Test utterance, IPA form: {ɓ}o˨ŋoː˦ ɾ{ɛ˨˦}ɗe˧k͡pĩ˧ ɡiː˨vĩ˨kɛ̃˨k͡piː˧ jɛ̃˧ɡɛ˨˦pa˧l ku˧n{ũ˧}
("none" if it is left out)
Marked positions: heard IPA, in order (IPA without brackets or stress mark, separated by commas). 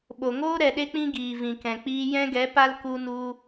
ɓ, ɛ˨, u˧